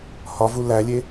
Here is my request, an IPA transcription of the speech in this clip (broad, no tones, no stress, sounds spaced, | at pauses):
h ɒ v u l æ lʲ e